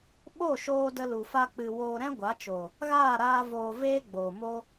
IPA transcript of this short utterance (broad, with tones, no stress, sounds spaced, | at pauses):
ɓ o˦˨ ʃ oː˧ d ə˧ l u˨ f a˧ k͡p ɨ˨ w oː˧ ɾ ɛ̃˦ ɡʷ a˨˦ t͡ʃ o˨ | ɣ aː˦˨ ɾ aː˧ v oː˨ v eː˦ ɡ͡b oː˨ m o˦